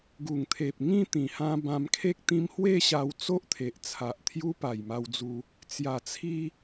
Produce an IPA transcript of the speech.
ɡ u˨˩ ŋ t̪ʰ e˨ p̚ ŋ ĩ˥˧ t̪ ĩ˨˩ h ã˧ b ã˧ m kʰ e˦ k̚ t̪ ĩ˧ m h w e˥˧ ɕ a˧ w t͡s o˦ ʔ t̪ʰ e˨ ʔ t͡sʰ a˨ ʔ t̪ʰ j u˦ p a˨˩ j m a˧ w d͡z u˧ | t͡s j a˨˩ t͡sʰ i˧

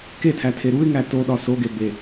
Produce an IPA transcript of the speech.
k e tʰ æ tʰ e ɾ u ɪ̯ ŋ æ t o ɗ ɒ s o ɡ e b e

